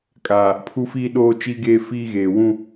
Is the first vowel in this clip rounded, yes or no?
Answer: no